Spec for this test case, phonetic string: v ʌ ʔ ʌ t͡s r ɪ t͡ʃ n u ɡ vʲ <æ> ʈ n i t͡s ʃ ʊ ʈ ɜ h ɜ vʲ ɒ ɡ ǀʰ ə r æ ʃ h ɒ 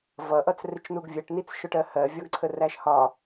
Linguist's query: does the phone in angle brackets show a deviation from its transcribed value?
yes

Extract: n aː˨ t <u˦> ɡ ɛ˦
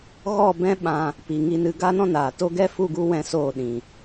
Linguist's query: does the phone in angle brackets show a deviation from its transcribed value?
yes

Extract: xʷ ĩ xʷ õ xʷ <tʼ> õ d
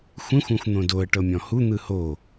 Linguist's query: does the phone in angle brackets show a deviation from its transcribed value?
yes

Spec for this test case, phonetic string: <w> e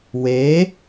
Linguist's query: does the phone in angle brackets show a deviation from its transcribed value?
no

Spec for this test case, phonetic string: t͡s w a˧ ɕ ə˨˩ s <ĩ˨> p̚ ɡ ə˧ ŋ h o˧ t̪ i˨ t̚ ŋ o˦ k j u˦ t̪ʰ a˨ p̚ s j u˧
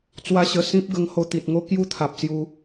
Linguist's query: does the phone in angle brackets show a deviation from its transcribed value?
yes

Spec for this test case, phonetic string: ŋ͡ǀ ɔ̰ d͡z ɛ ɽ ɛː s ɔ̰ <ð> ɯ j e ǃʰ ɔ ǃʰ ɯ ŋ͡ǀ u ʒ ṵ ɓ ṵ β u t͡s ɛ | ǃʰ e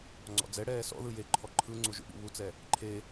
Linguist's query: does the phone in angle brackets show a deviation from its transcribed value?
no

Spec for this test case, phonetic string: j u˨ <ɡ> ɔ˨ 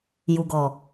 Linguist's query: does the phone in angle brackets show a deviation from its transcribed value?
no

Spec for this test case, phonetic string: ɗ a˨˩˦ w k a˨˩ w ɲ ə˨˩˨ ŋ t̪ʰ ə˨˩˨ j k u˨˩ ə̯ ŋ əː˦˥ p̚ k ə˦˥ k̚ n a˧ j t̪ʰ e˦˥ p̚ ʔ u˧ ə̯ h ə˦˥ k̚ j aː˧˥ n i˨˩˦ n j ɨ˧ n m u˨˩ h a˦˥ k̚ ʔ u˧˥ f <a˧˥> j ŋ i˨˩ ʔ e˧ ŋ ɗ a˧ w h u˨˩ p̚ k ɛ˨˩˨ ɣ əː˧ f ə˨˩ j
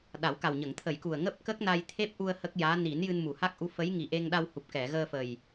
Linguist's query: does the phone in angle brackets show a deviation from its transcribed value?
yes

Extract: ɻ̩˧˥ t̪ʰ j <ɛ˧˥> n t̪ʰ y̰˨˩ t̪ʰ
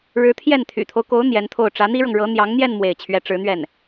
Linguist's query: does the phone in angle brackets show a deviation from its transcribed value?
yes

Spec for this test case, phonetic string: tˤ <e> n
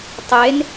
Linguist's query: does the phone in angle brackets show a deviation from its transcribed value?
no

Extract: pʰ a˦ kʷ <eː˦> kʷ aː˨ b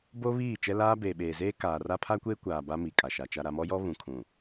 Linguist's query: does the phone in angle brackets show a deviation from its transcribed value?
no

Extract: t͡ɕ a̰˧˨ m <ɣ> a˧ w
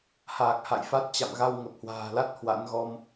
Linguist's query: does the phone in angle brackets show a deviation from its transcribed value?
no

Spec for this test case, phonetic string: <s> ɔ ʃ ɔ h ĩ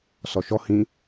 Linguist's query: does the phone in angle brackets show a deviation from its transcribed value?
no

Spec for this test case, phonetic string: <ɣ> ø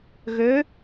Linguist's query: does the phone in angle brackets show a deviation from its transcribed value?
no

